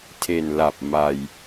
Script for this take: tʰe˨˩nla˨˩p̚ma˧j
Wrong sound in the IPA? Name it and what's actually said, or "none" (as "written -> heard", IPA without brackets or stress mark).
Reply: none